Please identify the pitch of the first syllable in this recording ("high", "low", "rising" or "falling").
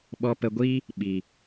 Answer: high